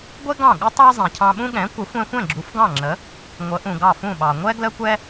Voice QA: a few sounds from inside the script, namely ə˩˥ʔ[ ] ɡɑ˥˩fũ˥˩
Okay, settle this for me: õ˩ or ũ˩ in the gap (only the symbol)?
ũ˩